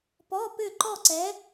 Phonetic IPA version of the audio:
p ɔ˧˥˧ p ʏ˥˨ ǃ ɔ˥˨ ǀ ɛ˧˥

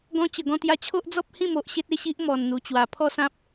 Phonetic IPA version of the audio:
ɡ ɔ̃˧ t͡ɕ ə˨˩ ɡ ɔ̃˧ t̪ j a˧ t͡ɕʰ o˦ ʔ d͡z ɔ˦ p̚ h ĩ˥˧ m o˨ ʔ ɕ e˦ t̚ e˥˧ ɕ i˦ ʔ m ɔ˨˩ n n̪ u˨˩ t͡ɕ w a˨˩ pʰ ɔ˥˧ s ã˦ p̚

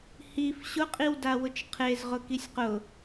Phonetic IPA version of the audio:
h i f ɕ ʊ qʼ i w d a w ʊ t͡ʃ qʰ e z ʁ ʊ k i sʲ q ʊ

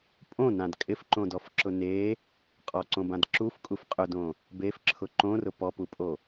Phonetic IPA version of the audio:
pʼ õ n ã d kʼ ɪ f ǃ õ d ɔ f ǁ ʊ n e | qʼ ɔ ǀ õ b ã d ǁ u f kʼ u f qʼ ʊ d õ | b e f ǁʰ ʊ ǃ õ r ʊ p ɔ p u pʼ o

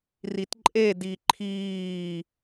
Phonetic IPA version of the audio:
r i t ǃʼ e d i ǃʰ iː

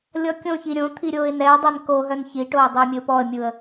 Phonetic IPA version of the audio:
lʲ ɔ kʲ õ ç i ɾʲ õ t̪ʰ i ɾʲ oː ɪ̯ n ɛ ə̯ dˤ ɛ n k o ɦ œ n ç i ʈ oː dˤ œ ə̯ mʲ ɵ ʊ̯ p ɔ ə̯ mʲ u ə̯

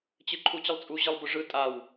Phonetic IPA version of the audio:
t͡ɕ ɨ ǃʰ u t͡ɕ ə lˠ t͡sʼ u ʑ ɯ lˠ b ʊ ʐ ɯ tʼ a w

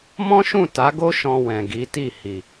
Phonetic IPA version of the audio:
m ɔ̃˦ ʃ ũ˦˨ t a˨˦ ɡ o˦ ʃ ɔ̃˧ w ɛ̃˨ ɡ i˨˦ t i˦˨ h i˨

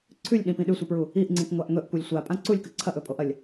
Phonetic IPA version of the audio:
ǀʰ ʉ lʲ ɗ ĩ p ĩ ɗ ʉ sʷ ɨ p ɹ u | i ʔ ŋ͡ǀ ĩ k ŋʷ a ʔ ŋ ɵ ʔ kʷ i lʲ sʷ a pʼ ã ǀ u lʲ k ɨ ǀʰ ɐ ʔ ɵ pʼ o ʔ ɐ lʲ

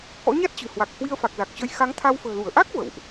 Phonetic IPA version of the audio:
k ɔ̰˧˥ ɲ a˦˥ t̚ t͡ɕ ɨ̤˨˩ h w a˨˩ k̚ h w i˧ ə̯ f a˨˩ k̚ z a˨˩ k̚ t͡ɕ ə˧ j x a˨˦ ŋ t̪ʰ a˧ w f ə̤ː˨˩ l u˧˩ ə̯ ʔ a˦˥ k̚ v ə̰˧˨ w ʔ

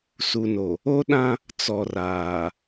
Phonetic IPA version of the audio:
s u˨ n o˨ | o˦ ɗ ã˦ | t͡s ɔ˨ r aː˨

